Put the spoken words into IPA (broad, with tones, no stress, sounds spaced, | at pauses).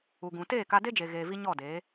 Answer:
u˨ ɡ ũ˨ t eː˦˨ k a˧ d e˦ d͡ʒ e˨ ɣ eː˨ v i˧ ɲ ɔ˦˨ d eː˨˦